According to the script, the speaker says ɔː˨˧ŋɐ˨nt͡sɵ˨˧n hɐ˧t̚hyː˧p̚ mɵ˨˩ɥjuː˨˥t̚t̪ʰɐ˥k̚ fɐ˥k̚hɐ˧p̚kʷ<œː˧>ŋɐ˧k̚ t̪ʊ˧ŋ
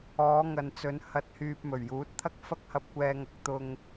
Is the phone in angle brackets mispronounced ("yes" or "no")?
yes